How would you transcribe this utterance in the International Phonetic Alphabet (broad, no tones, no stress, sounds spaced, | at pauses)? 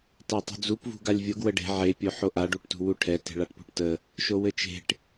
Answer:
t a tˤ ṳ d͡z u p v ṳ ɡ a lʲ vʲ o ɡ w ə ɖ e̤ ʕ e pʲ o ħ o ʔ a ɖ u ʈ t ṳ w u ʈʰ ɛ t e̤ ɭ a ʈ p ṳ ʈ t ə | ʃ o w ɘ t͡ʃ e̤ ʈ